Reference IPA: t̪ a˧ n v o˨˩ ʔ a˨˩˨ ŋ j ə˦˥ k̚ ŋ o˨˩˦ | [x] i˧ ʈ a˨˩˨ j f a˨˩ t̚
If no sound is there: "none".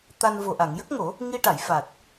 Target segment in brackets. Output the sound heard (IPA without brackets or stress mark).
ŋ